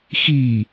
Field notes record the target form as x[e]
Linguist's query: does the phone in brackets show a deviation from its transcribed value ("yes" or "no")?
yes